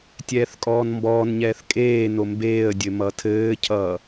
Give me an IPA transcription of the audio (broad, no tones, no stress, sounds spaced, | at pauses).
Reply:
tʲ ɛː θ kʼ ɔː n m b ɔː n ɲ ɛː θ kʼ eː n o m b eː ə̯ dʲ ɘ m ʌ tʰ ɘː cʰ ʌː